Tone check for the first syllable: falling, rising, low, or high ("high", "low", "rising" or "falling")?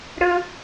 low